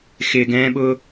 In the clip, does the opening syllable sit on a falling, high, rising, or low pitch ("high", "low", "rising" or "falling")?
low